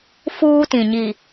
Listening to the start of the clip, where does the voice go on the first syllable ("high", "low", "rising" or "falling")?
high